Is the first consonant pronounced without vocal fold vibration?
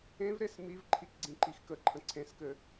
no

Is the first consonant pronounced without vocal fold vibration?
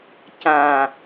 yes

